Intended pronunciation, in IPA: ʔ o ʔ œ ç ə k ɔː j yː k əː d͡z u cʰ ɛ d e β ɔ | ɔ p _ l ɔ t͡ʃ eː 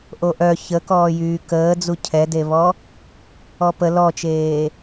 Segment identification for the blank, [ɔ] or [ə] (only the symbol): ə